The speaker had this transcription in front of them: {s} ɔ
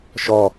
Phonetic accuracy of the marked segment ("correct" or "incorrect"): incorrect